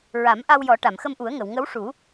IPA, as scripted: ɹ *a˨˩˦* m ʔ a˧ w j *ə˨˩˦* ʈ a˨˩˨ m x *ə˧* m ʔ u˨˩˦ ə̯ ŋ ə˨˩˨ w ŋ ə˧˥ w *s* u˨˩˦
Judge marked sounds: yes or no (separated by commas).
yes, no, yes, no